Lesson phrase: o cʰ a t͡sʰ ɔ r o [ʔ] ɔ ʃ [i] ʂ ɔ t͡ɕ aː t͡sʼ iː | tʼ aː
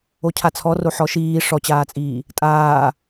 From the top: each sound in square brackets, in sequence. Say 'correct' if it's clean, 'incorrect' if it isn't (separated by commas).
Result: incorrect, incorrect